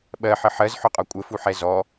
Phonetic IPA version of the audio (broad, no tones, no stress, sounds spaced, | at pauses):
ɓ ɜ ħ ə ħ ɜ z ħ ʊ qʼ ɒ kʷʼ ə f u ħ ɛ z ɔ